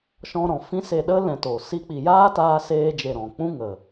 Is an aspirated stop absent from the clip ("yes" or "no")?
yes